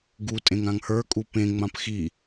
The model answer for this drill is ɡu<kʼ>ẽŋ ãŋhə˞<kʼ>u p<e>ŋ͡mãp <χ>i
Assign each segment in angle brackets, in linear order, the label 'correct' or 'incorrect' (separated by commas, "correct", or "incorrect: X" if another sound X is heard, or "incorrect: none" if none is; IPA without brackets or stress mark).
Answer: incorrect: tʼ, correct, incorrect: ẽ, incorrect: x